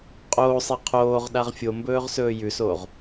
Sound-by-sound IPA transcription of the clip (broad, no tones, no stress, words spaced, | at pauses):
qʼoːsˤe qʰoːʁ ɗaʁfʲombɵːʁ sɵːjʉsoːʁ